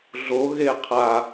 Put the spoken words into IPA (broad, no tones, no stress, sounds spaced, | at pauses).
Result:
ɮ o ɣ e qʰ a